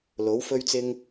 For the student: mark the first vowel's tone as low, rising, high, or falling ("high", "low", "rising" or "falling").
rising